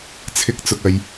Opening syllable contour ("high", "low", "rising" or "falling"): high